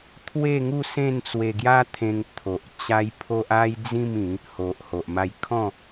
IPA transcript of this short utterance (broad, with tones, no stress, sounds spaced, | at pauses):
t̪ʰ w e˥˧ ŋ u˥˧ s ẽ˥˧ n t͡s w e˧ ɡ j a˦ t̪ʰ ẽ˧ ŋ t̪ʰ o˨ ʔ t͡ɕ a˦ j pʰ o˦ ʔ a˦ j d͡z ĩ˥˧ m ĩ˨˦ | h o˨ ʔ h o˨ ʔ m a˧ j kʰ ɔ̃˥˧